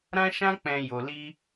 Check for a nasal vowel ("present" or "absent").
present